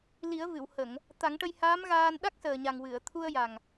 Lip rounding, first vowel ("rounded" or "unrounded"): unrounded